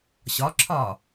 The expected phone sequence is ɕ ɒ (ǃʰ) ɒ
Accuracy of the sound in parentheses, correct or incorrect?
incorrect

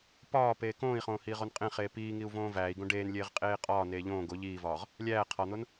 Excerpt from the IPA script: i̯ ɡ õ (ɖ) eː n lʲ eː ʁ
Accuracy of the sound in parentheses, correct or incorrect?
correct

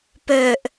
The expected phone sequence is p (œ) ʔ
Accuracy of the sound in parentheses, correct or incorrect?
correct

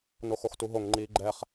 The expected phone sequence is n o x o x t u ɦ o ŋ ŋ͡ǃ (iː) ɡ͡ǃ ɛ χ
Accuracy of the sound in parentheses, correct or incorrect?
correct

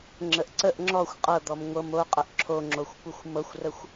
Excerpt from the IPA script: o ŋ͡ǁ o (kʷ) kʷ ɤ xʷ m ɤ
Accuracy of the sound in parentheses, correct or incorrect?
incorrect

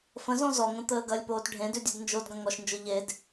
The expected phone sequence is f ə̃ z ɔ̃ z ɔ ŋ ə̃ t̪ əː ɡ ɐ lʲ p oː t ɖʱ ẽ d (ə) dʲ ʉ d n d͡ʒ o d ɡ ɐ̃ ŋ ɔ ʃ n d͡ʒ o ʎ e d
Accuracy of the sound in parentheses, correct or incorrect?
incorrect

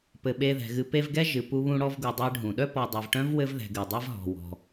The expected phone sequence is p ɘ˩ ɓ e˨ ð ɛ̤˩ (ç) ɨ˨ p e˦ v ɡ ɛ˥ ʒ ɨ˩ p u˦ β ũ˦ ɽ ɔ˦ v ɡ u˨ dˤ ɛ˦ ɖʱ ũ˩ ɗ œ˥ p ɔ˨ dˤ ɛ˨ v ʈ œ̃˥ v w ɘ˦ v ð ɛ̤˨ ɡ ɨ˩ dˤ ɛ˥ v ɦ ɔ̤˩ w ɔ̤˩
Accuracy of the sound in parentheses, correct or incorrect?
incorrect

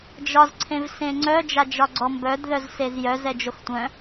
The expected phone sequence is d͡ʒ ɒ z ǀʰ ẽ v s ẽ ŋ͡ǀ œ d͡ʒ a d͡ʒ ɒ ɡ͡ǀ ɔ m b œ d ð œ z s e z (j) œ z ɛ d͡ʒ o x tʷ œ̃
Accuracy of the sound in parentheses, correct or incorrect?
correct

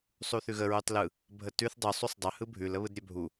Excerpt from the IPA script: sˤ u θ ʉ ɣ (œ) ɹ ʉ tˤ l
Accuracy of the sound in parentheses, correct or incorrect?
incorrect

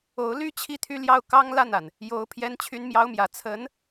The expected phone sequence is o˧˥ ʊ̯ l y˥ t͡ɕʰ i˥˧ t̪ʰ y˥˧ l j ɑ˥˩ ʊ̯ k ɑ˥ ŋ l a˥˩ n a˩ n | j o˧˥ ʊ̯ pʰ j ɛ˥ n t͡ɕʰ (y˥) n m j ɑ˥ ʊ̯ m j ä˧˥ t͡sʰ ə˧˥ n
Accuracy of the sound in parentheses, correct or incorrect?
correct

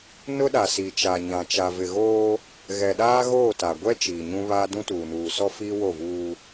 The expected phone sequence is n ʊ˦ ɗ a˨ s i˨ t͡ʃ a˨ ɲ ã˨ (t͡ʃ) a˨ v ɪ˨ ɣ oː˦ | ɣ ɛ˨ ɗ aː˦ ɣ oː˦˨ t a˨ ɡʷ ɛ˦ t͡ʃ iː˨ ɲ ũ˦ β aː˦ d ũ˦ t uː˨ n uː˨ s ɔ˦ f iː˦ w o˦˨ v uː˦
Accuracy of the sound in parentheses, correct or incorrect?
correct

